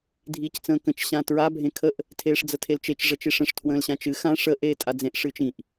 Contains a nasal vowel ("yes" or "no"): yes